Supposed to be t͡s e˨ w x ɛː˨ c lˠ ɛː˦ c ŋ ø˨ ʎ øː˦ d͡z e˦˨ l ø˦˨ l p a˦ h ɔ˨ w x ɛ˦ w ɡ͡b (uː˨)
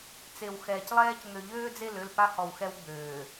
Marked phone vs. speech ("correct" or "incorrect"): incorrect